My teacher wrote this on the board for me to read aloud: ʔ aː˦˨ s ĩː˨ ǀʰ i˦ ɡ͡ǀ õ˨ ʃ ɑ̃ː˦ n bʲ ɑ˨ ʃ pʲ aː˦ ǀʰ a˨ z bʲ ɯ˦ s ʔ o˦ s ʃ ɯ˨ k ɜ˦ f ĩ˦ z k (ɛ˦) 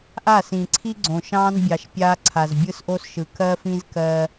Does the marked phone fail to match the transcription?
yes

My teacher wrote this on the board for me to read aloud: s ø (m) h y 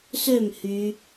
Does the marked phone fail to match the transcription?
no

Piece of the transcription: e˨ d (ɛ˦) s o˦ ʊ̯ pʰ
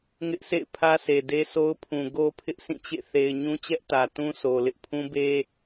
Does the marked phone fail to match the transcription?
yes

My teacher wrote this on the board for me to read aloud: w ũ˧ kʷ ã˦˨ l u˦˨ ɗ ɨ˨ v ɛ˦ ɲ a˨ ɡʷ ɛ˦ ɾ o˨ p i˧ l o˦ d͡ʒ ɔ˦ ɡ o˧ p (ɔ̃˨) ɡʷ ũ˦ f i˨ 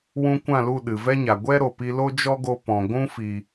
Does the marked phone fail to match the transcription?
no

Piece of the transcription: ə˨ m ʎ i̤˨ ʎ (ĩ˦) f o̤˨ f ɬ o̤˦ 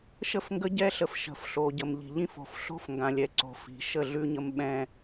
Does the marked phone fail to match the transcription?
no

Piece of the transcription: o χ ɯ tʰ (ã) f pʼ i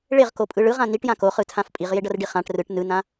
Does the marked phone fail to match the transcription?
no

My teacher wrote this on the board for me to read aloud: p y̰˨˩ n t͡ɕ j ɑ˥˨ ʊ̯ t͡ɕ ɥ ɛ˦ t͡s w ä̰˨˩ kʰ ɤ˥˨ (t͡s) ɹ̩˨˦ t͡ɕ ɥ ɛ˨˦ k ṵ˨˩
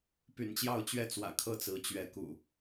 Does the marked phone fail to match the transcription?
no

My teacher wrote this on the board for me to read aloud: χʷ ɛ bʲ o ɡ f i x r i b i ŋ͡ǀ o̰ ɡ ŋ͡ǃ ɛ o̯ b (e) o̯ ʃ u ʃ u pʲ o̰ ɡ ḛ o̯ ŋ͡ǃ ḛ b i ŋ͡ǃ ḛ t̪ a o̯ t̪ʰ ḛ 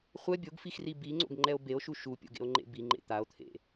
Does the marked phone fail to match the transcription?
no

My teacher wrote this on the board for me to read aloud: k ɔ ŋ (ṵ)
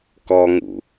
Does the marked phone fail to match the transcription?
no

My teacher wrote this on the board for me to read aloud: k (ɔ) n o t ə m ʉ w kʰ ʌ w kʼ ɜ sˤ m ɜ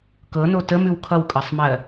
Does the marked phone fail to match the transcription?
yes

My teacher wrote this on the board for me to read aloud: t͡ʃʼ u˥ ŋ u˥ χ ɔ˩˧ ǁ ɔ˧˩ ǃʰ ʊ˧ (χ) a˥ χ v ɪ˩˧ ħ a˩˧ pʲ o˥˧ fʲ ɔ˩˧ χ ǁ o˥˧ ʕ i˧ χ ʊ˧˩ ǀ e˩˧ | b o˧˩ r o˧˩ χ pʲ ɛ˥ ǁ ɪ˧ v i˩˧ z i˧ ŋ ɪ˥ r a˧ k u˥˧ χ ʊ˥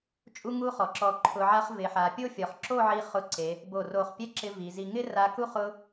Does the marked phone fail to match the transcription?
yes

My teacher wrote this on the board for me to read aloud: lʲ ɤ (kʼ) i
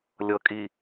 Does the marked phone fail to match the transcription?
no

